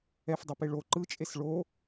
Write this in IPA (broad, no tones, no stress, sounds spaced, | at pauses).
ɛ f dˤ ɛ p e ɭ o ǃ ɯ t͡ʃʼ e s ɭ o